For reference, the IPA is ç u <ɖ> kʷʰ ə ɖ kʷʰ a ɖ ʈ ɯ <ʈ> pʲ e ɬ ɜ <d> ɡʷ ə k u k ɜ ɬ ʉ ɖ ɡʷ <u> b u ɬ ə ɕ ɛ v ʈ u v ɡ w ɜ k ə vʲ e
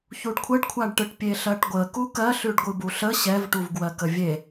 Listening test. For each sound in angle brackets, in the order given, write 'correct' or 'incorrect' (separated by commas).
correct, correct, incorrect, incorrect